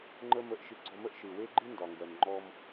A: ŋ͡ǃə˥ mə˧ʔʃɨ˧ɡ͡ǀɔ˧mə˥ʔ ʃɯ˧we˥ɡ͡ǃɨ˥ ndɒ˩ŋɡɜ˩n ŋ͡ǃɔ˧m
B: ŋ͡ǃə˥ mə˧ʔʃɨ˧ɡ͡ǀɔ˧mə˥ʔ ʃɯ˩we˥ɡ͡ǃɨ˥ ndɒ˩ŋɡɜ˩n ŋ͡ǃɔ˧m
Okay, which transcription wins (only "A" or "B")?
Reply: B